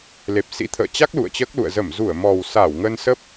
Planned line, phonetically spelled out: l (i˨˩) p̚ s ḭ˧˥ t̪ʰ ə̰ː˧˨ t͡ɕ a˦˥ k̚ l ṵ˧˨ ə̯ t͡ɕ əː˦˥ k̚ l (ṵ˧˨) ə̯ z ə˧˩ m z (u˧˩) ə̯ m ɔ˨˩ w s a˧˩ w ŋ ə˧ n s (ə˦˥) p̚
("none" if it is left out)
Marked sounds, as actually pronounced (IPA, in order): e˨˩, ṵ˧˨, u˧˩, ə˦˥

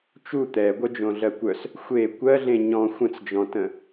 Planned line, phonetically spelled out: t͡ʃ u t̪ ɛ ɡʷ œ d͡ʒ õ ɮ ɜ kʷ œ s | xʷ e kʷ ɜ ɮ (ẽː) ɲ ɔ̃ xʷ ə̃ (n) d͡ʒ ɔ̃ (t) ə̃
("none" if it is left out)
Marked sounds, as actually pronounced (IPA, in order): ẽ, t͡s, t

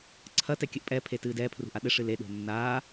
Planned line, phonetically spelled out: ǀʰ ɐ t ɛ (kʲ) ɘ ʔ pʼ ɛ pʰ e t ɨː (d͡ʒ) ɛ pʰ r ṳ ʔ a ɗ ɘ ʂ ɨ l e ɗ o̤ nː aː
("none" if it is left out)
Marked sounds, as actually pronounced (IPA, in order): kʲ, d

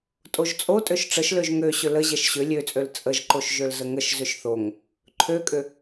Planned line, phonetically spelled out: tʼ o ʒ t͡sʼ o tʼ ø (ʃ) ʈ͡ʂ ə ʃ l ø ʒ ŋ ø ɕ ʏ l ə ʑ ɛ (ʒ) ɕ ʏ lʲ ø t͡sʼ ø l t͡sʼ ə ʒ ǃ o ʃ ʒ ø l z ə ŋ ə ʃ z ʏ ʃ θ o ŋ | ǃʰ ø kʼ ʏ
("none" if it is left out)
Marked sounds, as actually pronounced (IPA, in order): ʃ, ʃ

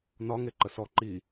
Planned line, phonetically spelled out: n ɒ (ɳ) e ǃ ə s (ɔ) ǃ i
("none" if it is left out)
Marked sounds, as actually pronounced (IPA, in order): ŋ, ɔ

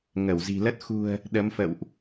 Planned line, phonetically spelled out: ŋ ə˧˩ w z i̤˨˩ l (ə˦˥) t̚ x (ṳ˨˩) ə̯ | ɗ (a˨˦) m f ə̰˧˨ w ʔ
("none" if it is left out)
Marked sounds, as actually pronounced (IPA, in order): ə˦˥, ṳ˨˩, ə˨˦

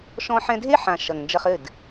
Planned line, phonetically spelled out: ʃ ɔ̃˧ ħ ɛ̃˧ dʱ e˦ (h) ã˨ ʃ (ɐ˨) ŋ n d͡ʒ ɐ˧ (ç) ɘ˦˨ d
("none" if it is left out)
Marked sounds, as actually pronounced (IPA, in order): ħ, ɐ˨, χ

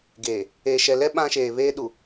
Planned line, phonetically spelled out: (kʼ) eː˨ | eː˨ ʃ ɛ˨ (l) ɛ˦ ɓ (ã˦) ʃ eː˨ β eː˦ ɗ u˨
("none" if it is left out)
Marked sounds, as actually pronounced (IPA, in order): ɡ, l, ã˦

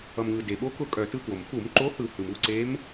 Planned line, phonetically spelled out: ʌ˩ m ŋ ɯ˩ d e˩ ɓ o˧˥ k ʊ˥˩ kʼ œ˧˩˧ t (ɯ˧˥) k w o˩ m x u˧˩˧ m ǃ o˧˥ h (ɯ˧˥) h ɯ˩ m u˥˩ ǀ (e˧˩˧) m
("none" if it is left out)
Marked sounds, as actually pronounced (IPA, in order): ɯ˧˥, ɯ˧˩˧, e˧˥

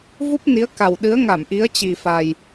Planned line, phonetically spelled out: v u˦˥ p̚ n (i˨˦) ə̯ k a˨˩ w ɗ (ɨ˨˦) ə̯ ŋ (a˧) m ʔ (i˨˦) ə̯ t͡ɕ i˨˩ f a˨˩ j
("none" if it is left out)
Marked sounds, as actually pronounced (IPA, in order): i˨˦, ɨ˨˦, a˧˩, i˨˦

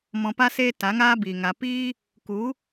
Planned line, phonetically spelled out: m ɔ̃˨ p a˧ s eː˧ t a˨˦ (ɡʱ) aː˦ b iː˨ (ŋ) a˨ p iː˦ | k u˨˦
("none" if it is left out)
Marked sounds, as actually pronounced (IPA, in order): ŋ, ŋ

